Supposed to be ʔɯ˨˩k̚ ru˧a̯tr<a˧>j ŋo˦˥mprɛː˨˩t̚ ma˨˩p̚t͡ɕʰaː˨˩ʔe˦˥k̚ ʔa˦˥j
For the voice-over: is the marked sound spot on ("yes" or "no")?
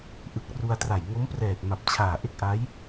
no